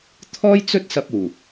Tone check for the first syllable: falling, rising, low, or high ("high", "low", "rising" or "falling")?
high